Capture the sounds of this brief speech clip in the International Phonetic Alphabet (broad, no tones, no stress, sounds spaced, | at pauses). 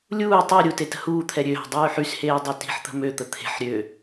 lʲ uː tˤ i ɾʲ u t e t ə̤ h uː t̪ʰ ɛ ɾʲ ø ɦ ə̤ dˤ yː ħ y s h eː dˤ ø t i̤ ħ t̪ ə̤ m ø t̪ ə t̪ʰ e̤ ħ ɾʲ ø